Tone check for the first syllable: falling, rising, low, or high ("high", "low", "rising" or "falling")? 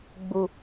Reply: low